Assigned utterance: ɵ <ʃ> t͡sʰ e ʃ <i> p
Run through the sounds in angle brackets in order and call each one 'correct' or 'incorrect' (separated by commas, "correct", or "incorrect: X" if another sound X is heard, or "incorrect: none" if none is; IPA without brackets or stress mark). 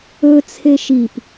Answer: incorrect: none, correct